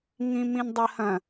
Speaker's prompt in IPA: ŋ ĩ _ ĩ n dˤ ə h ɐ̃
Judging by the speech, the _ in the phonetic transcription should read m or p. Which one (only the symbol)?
m